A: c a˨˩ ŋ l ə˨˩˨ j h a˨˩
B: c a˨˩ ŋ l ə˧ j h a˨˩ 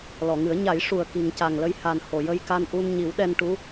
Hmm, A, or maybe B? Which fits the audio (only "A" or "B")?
B